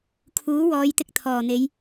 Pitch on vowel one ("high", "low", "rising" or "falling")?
rising